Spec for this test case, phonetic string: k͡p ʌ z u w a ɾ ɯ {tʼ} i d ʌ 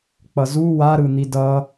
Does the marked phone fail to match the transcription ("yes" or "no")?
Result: yes